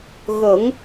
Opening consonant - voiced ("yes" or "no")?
yes